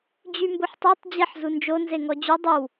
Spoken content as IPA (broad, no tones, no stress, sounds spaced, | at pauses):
d͡ʑ y m b o ħ tˤ u tˤ d͡ʑ e ħ z u n d͡ʒ o n z e ŋ ɔ d͡ʑ y dˤ y w